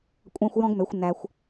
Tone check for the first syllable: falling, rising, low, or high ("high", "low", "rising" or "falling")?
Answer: high